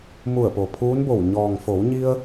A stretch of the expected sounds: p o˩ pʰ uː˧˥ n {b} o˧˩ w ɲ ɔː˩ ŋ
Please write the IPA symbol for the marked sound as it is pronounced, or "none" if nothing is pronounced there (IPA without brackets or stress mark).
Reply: b